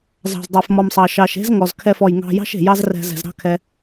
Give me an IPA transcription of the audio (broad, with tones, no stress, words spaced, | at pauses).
zɑ̤˨zdˤe˨fmɔ˨msˤɑ˨ ʃɑ˨ʃe̤˦z ŋɔ˨zkʰɛ˦˨f ɔ˨jŋɑ̤˧jɑ̤˦ʃ e̤˨jɑ˦zrɛ̤˧ zɛ̤˨zɾɑ̤˦kʰɛ˧